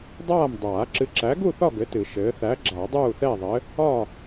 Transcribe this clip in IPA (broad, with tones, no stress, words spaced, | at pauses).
dˤaː˥˨m dˤaː˨˩˦ǁɨ˨˥ǁæ˨˥ ɡu˥˨θɒ˥˨ ɡɘ˨˥tɨ˨˩˦ ʃɘː˨˥ θæ˨˥ɡ͡ǁa˨˩˦ dˤuː˥˨θɛ˥˨ðˤɘ˨˥ | ɒ˥˨